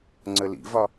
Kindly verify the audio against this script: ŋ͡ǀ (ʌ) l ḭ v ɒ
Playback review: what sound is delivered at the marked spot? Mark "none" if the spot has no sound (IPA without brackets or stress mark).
ə